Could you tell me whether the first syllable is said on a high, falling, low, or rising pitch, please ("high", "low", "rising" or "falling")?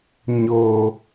low